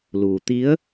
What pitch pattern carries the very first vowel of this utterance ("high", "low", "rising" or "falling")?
low